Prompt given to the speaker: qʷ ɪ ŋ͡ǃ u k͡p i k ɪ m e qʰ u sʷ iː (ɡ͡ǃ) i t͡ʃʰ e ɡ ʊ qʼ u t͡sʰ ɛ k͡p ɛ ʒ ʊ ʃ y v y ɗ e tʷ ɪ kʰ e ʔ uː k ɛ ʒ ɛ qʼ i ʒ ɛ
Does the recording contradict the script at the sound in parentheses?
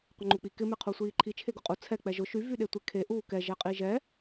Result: yes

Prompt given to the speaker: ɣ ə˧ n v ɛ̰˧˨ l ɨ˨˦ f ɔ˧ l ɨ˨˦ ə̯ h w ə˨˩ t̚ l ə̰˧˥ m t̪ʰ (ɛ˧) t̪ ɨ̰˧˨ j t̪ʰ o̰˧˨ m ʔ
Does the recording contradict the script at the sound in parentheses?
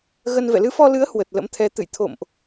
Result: yes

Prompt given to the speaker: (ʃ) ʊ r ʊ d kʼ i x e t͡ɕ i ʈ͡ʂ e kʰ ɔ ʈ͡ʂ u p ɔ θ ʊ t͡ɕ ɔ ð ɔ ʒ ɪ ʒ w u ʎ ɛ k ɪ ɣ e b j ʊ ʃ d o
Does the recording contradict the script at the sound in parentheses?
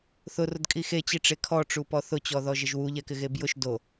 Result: yes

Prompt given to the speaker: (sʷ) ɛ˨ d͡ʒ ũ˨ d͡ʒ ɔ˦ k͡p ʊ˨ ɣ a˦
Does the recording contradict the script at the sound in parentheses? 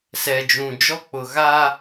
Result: yes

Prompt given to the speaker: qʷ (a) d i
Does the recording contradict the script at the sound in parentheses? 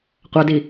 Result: no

